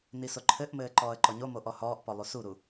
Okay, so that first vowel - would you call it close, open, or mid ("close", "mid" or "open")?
close